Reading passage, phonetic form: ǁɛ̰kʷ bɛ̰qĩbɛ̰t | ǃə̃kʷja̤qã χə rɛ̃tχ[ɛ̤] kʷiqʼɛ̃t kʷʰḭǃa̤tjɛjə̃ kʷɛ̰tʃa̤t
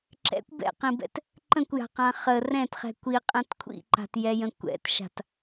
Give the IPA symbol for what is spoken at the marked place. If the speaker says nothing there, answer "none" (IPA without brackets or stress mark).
ɛ̤